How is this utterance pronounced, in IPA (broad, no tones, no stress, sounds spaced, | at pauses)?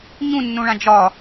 ɲ ũ nː ũ ɭ ã d͡ʒ ɒ